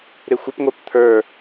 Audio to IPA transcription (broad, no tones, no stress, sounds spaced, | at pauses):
ɾ ɪ xʷ ɪ p ŋʷ ə˞ p t̪ʰ ə˞